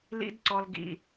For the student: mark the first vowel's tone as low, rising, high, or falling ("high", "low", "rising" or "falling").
high